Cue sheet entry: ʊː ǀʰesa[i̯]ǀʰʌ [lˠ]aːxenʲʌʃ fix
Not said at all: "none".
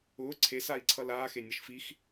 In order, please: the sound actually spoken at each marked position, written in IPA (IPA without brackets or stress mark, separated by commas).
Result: i̯, l